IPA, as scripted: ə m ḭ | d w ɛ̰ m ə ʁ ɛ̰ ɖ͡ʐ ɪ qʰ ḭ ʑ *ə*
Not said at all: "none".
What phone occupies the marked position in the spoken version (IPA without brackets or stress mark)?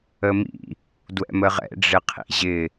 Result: ɪ